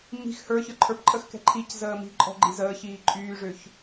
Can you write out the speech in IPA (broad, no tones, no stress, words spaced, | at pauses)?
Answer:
mi̤x hə˞çə˞ ǃʰə˞pǃʼəxkɛ̤ ǃʰic zəːmi̤ǃʼɔ̤ ɡ͡ǃi̤zəːçiː ǃʼyːʐʏːç